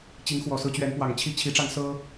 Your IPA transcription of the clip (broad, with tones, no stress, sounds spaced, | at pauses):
t͡ɕ i˨˦ ŋ x w ɔ˨˩ s ɹ̩˦ t͡ɕ ɥ ɛ˨˦ n p w ɑ˨˩ ŋ t͡ɕʰ i˦ t͡ɕʰ i˨˦ ʈ͡ʂ ɑ˧ ŋ s ɤ˦